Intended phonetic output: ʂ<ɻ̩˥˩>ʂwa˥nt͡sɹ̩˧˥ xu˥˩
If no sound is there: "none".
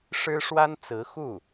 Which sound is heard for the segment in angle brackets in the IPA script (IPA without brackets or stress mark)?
ɻ̩˥